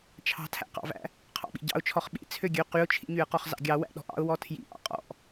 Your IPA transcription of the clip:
t͡ʃʰ ɑ̤ tʰ æ̰ q ɑ̰ v æ̰ | qʰ ɑ̰ ɓ ḭ ɟ ɑ̰ ʊ̯ t͡ʃʰ ɔ χ ɓ ḭ t͡sʰ ø ɡʲ ø q y ʊ̯ t͡ʃʰ ḭ ɲ y ə̯ q ɔ χ z ɑ̰ ɡʲ ɑ w æ̰ ɗ ɔ̤ ʔ ɑ̰ ʊ̯ w ɔ tʰ j ḭ ʔ ɑ̰ qʼ ɔ̰ ʔ

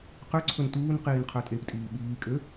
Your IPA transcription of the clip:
q ø ǀʰ ɵ n t uː n q iː n qʰ œ tʼ e p tʼ iː ɓ iː kʼ ø

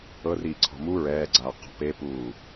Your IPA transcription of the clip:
ɤ r iː ǀʰ ɔ̤ m u ɹ ɛː ɡ͡ǀ aː q ɔ̤ p e p uː

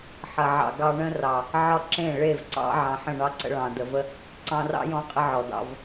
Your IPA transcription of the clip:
ħ ɐ˨ ʕ ɑ̰˨ ɡ ɑ˧ ɳ ə̃˦ r ɑ˨ | ʕ ɒ˦ ǁ ẽ˦˨ ɭ e˦˨ v ǀ ɑ̰˦ ʕ ɑ̃˨ ħ ə̃˦˨ ɳ ɑ˦ ǀ ə̰˧ ɭ ɑ̃˨ d ə˨ v ə˦ | ǀ ɑ̃˧ r ɑ̰˦ j ɔ̃˦ qʼ ə˦ ʕ ɔ˨ d ɑ̰˧ v

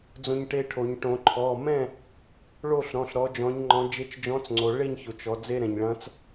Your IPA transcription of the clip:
d͡z õ˧ ɲ ʈ e˧ ʈʰ o˩˧ ɲ ʈ õ˩˧ ǃʰ ɔ˩˧˩ m ɛ̃˥˨ | ɭ o˥˨ ɬ ɾ ɔ̃˩˧˩ ɬ ɾ ɔ˨˥ d͡ʒ ɔ̃˨˥ ɲ ŋ͡ǃ ɔ̃˨˥ d͡ʒ e˨˥ t͡ʃ d͡ʒ ɔ̃˨˥ t͡s ŋ͡ǀ o˩˧ ɭ e˥˨ ɲ ç o˩ t͡ʃ ɔ˩˧ d͡z e˧ ɾ ɛ̃˩ ɲ ɭ ɐ̃˨˥ t͡s

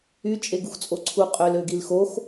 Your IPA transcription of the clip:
y t͡ʃʼ e ɡ u x t͡sʼ o ǀʰ u qʼ ø l ø ɡ i l x o x

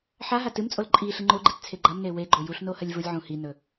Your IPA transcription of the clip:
ħ a ɦ a t ɨ m t͡sʼ o l ǃʼ i ɬ ɨ ŋ͡ǃ o ɡ͡ǃ i t t͡sʰ e ɡ͡ǃ ɐ m n e w e ɡ͡ǃ o j u ɬ n o h ɐ lʲ v u lʲ ʕ ũ h i n ɵ

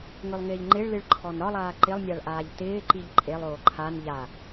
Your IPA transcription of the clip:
ŋ ɵ lˠ ŋ ɪː ʎ ŋ͡ǃ ɪ ɭ l ɨ ɭ ǃʰ ɔ n ɾ ɒ lˠ aː ǃ ɪ lˠ nʲ a ɭ ʔ aː ʎ t ɪː ǃ i ʎ ǃʼ e lˠ oː ǃʰ a n ʎ a

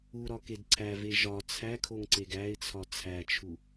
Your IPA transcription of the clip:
u ɾ ɒ k e d ǀʰ æ v e ʒ ɒ t͡sʰ æ kʰ o ŋ ǀ e ɡ æ ɪ̯ t͡sʰ ɒ t͡sʰ æ t͡ʃʰ u

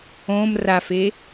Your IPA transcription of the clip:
õ m r a f e

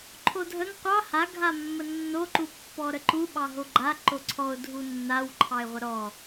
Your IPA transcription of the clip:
ǃʰ o dʱ ə ŋ qʷ ɑ h a ɡʱ a mː ə nː o ǃ u pː ɔ ɾ ə ǃ u ɓ ɑ ɦ o ɡ͡ǃ a ǃ o ǀʰ ɔ ʊ̯ dʱ u nː a w ǃʰ ɑ ɪ̯ ʁʷ ə ɾ ɔ

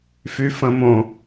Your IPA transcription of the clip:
f y f ə̃ m õ

